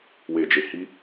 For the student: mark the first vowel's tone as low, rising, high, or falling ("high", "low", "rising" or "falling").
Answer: low